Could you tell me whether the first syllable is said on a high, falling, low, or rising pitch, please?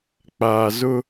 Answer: low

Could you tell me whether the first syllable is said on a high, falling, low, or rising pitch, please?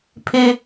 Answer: high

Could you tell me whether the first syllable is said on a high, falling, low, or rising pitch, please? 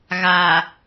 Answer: low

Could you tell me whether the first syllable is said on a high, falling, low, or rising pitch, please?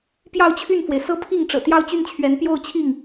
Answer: falling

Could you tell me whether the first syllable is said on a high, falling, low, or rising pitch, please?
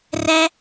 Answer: high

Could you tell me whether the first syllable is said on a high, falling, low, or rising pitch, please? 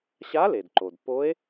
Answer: rising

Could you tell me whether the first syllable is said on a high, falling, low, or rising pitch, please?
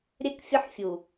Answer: high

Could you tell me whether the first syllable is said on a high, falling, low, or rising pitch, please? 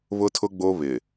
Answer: high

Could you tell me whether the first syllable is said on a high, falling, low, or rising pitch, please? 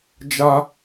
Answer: high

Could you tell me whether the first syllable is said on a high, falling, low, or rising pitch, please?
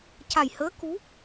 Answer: low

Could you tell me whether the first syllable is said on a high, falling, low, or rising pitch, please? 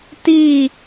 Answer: falling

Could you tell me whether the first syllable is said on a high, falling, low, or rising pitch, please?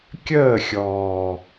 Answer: falling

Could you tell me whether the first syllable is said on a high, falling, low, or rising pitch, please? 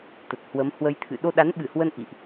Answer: low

